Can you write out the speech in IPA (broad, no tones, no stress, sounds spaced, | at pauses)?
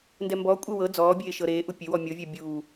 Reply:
n d ɛ m b ɔ kʷʼ e w ɤ d͡z ɔː bʲ eː ʃ ɤ ɾ eː ʔ u pʲ e w ɔ mʲ o vʲ ɛ bʲ uː